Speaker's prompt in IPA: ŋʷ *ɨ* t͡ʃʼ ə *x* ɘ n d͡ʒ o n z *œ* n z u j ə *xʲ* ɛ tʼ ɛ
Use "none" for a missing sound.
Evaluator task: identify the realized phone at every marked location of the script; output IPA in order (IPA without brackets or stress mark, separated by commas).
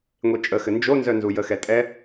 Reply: e, x, œ, x